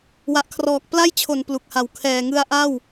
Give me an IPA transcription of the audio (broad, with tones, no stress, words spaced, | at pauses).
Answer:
wa˨˩ʔkʰrɔː˨˩k̚ pla˥˩jt͡ɕʰo˩˦n plu˨˩k̚ha˨˩w kʰɛː˨˩ŋɯ˧a̯ʔa˥˩w